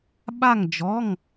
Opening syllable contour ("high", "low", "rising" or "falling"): falling